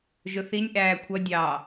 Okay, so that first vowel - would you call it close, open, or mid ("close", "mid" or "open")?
close